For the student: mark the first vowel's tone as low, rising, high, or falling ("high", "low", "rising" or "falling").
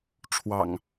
low